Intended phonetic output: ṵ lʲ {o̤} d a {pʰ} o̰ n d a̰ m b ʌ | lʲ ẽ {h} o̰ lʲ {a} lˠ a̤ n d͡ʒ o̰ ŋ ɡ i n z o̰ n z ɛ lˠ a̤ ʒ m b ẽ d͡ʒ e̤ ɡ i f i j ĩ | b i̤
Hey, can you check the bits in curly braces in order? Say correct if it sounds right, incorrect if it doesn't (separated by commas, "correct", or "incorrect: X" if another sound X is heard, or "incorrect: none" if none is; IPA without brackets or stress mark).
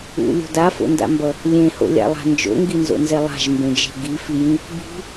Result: correct, incorrect: f, correct, incorrect: a̰